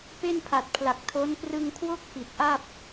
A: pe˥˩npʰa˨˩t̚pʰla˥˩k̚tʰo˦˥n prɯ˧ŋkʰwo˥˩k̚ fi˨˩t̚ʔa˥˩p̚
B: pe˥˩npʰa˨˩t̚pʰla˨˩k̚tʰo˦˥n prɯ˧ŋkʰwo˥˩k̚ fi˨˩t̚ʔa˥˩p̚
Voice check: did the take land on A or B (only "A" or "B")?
B